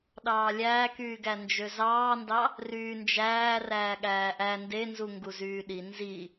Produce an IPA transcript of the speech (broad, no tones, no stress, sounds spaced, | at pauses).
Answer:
ɗ ɑː lʲ æː k yː ɡ æ n d͡ʒ ø z ɑː n d ɑ | r yː n d͡ʒ æː r æː ɠ æː ʔ æ n d e n z u ŋ ɡ u z yː ɗ i n z i